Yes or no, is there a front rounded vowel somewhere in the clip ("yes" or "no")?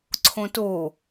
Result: no